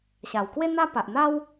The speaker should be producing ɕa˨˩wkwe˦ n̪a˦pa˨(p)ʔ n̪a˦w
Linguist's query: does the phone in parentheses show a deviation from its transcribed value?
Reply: yes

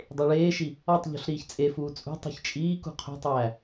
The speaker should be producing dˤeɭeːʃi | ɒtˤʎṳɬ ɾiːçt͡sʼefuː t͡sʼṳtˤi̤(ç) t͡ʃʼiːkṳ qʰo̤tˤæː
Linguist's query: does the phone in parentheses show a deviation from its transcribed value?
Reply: no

